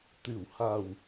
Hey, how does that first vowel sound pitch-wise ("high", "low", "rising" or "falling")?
low